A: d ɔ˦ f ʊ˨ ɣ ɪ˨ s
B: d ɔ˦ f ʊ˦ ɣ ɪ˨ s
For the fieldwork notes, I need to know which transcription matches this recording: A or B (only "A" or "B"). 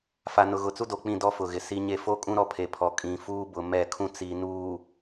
A